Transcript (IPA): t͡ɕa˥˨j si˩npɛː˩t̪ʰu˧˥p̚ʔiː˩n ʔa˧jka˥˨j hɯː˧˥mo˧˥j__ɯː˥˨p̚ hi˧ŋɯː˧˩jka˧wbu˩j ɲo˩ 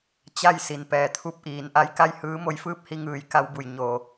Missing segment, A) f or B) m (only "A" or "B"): A